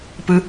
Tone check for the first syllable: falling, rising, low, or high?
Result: high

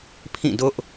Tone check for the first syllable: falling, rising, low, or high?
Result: falling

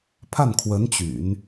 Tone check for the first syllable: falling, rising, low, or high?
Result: falling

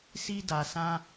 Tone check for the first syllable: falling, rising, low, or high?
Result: high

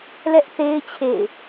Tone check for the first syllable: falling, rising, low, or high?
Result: high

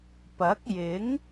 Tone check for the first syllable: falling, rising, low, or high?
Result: rising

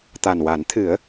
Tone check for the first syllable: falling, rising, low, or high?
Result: low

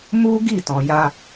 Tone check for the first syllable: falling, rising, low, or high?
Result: high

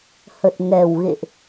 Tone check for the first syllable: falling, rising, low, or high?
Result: low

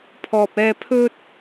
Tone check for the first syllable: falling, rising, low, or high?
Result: low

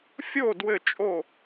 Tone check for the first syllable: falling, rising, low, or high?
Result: falling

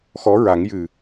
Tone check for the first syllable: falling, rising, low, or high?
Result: rising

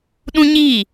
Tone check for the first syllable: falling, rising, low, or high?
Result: high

